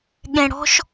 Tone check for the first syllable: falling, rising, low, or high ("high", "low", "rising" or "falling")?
low